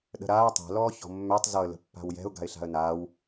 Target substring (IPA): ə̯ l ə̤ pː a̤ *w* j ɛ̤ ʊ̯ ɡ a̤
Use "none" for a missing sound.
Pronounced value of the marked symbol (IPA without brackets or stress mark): w